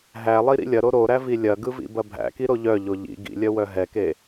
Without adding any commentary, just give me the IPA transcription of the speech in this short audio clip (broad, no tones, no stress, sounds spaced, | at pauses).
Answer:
ɦ æ lˠ i ɾ ḭ lʲ ɐ ɾ o ɾ o ɾ æ v i lʲ ɐ ɡ ɯ v ḭ b ɐ bʱ æ̰ k i ɾ o ʎ œ ʎ o ʎ ḭ ɡ ḭ lʲ œ w œ ɦ ɛ k e